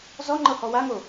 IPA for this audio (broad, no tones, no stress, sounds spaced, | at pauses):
z ɔ ŋ͡ǃ ɤ h ɔ w a ŋ o